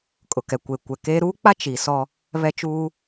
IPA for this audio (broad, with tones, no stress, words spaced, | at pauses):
kʼʊ˨kɛ˨ kʷe˨kʷɛ˨keː˦ ɾuː˦k͡pa˦ t͡ʃi˨ sɔ˦ | βɛ˦t͡ʃuː˦